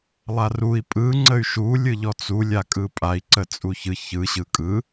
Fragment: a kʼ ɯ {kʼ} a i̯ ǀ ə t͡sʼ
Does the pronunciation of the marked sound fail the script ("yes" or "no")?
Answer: yes